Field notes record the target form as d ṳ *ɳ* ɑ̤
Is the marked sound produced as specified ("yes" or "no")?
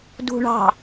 yes